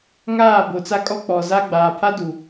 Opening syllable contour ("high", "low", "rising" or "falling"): falling